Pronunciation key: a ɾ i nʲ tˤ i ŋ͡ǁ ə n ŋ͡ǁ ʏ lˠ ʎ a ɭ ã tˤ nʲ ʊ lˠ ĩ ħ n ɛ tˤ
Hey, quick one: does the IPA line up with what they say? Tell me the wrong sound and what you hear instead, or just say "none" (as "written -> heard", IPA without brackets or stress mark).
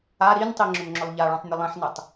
ə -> ʏ